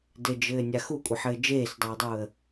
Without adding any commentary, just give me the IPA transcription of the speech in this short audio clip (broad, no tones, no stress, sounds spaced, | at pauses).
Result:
d ɘ d͡ʒ ɘː nʲ a x u kʷʼ ɘ ħ ɘː d͡ʒ eː s dˤ ɘː dˤ uː ə̯